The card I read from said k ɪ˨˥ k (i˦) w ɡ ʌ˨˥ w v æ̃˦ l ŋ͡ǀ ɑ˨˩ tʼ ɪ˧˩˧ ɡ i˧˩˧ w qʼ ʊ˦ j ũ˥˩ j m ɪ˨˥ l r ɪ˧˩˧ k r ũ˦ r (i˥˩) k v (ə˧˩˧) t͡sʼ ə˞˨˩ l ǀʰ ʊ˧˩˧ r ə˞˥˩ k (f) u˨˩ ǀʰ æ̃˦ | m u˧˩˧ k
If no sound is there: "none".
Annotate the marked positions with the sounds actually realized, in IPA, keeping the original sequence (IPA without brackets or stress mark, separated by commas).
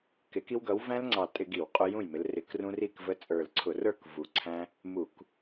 i˦, i˥˩, ə˦, v